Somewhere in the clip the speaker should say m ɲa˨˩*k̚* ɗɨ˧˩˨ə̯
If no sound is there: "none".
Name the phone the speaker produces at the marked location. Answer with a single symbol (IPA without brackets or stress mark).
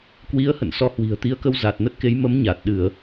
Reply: t̚